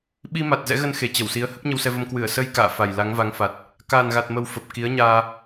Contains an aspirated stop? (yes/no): no